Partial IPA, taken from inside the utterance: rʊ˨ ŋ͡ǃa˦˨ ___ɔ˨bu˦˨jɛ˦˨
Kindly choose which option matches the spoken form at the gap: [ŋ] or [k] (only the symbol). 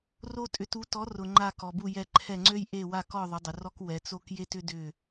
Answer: k